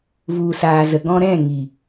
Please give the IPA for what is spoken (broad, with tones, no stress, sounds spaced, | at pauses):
v u˨ s aː˨ z ə˨ ɡ ɔ̃˧ ɾ ɛ̃˦˨ ŋ i˨